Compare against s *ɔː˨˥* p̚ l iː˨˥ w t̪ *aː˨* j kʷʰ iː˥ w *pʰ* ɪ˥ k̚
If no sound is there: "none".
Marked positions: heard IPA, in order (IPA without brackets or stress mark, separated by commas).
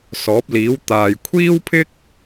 ɔː˨˥, aː˨, pʰ